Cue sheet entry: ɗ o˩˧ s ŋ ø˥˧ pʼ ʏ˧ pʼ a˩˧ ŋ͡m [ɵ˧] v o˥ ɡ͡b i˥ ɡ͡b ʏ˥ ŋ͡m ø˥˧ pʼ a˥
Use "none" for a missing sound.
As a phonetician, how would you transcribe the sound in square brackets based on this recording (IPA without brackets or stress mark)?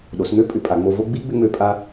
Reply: o˧